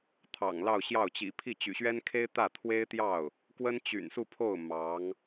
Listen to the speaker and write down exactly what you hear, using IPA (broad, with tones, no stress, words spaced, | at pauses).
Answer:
t̪ʰɑ̰˨˩ŋlɑ˥˧ʊ̯ɕjɑ˥˩ʊ̯ t͡ɕḭ˨˩pʰi˥˩ t͡ɕy̰˨˩ɕɥɛ˥n kʰe˥ɪ̯ t̪ä˥˩ t̪ʰwe˥ɪ̯t̪jɑ˥˩ʊ̯ | kwə˥nt͡ɕy̰˨˩nsu˥˧pʰo˥˩ʊ̯ mɑ˧˥ŋ